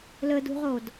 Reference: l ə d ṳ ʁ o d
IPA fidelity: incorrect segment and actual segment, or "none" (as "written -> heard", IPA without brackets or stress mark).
none